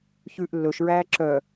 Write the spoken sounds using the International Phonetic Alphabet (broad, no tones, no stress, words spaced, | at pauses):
çʉːʔlːɵʃɹæː ǁœ